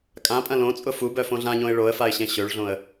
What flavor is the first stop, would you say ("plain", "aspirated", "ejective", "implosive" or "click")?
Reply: ejective